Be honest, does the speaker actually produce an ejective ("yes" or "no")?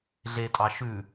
yes